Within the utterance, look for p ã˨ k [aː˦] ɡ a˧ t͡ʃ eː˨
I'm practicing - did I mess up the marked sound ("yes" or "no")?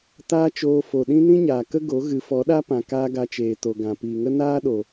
no